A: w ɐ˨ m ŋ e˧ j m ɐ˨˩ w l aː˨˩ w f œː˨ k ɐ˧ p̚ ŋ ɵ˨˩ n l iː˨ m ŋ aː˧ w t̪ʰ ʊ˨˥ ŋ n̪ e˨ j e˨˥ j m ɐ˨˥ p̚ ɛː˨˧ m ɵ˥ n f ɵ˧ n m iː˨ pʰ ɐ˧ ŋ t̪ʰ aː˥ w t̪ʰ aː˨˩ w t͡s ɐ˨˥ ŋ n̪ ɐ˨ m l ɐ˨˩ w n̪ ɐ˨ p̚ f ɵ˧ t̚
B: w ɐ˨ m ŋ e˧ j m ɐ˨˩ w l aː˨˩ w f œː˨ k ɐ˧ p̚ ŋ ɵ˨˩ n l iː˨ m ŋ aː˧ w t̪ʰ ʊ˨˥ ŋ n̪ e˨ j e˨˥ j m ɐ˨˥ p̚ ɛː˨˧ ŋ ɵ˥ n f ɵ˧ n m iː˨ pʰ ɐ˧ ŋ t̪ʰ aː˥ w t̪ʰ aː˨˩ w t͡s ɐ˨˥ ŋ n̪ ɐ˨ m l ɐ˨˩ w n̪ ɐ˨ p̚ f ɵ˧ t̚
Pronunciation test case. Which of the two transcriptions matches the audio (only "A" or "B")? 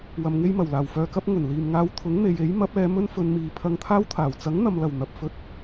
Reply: A